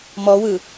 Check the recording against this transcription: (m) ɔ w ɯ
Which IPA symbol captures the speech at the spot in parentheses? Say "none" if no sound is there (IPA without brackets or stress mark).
m